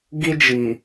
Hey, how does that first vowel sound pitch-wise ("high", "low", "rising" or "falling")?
high